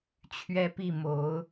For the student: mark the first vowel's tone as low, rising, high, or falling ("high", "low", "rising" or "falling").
high